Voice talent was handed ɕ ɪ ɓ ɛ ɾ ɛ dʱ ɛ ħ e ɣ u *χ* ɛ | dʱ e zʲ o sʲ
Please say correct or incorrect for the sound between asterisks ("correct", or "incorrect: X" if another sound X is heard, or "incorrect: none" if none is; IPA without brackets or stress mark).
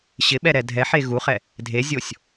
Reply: correct